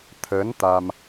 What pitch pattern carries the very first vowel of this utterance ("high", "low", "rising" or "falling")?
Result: rising